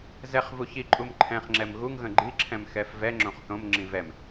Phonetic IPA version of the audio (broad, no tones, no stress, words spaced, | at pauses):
zɛχ vuçiǃʼum ǃʰɛ̃χŋ͡ǁɛm ɣuŋɣə̃ ɡ͡ǃiǁʰɛ̃m xɛfvɛŋ͡ǁõχ θõmŋ͡ǁĩ vɛm